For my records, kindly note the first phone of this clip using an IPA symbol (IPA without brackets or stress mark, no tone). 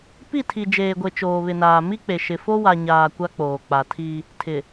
p